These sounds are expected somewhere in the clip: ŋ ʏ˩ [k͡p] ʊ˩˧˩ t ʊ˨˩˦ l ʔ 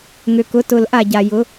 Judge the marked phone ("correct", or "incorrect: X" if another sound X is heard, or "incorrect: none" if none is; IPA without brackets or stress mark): incorrect: k